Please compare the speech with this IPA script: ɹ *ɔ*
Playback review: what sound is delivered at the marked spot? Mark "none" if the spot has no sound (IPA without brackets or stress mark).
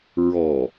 ɔ